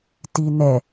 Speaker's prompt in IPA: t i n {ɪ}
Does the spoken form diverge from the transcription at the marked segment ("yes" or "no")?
yes